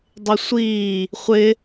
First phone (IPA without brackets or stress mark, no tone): dˤ